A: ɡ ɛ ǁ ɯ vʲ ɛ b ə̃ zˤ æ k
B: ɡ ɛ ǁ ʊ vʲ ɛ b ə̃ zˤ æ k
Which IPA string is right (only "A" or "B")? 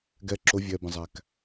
B